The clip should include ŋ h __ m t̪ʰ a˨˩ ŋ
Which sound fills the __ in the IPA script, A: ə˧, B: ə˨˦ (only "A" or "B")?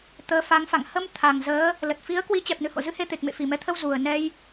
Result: A